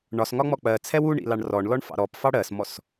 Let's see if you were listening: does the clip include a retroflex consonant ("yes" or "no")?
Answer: yes